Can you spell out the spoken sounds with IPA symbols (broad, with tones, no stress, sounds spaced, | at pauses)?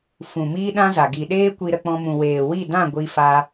f ũ˨ m iː˦ ɗ ã˦ z a˨ ɡ i˨ ɗ eː˦ kʷ i˧ ɾ ə˧ k͡p ɔ̃˧ m ũ˨ w eː˨ w i˦˨ d ã˦˨ ɡʷ i˧ f a˧